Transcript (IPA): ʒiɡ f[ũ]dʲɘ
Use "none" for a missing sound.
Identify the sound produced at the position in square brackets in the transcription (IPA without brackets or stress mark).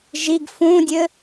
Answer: ũ